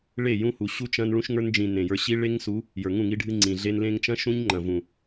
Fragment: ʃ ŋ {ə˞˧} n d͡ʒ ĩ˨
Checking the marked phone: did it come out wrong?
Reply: no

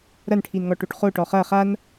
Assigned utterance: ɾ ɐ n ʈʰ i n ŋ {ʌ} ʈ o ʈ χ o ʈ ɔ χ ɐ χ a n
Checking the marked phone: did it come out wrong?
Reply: yes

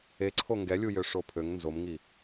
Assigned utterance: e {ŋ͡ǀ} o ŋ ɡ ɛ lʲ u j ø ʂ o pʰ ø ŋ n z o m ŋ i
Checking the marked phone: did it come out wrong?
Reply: yes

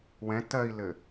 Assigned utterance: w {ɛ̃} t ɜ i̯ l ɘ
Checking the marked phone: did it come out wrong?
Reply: no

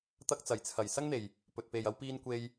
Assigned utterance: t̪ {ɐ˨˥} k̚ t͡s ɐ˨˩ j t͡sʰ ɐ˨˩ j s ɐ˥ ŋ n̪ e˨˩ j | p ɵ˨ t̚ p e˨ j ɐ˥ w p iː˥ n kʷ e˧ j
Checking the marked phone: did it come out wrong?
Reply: yes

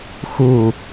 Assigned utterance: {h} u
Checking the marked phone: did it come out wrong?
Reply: yes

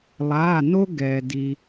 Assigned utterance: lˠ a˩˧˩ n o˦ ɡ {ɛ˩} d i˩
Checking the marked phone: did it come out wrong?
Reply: no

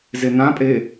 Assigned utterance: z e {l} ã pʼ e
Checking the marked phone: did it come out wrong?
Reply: yes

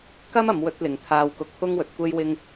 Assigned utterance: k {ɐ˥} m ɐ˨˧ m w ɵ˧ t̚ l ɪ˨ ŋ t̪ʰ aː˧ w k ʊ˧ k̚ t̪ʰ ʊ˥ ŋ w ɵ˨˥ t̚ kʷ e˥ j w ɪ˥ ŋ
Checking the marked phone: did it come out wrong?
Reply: no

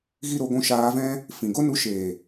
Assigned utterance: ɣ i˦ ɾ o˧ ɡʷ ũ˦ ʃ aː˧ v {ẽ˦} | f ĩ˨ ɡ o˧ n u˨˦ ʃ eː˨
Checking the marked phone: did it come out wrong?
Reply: yes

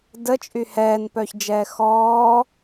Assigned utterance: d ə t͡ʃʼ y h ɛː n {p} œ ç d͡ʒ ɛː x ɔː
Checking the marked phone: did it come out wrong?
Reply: no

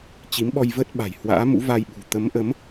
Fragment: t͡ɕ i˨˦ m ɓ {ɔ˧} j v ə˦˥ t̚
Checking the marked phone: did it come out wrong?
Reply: no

